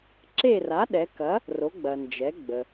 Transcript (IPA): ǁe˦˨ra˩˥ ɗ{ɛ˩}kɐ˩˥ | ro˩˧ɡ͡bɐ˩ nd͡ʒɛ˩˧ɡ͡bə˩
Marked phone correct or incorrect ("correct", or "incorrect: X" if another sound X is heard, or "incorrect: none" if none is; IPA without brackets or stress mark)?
incorrect: ɛ˩˧